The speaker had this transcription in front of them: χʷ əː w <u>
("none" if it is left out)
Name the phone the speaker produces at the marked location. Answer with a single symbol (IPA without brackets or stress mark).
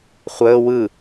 ɯ